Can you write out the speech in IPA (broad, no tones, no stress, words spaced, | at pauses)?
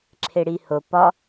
ǁʰeɽiho pɒ